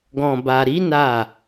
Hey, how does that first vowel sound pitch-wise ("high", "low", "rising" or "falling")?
low